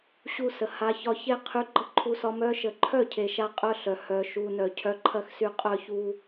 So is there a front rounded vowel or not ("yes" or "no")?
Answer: yes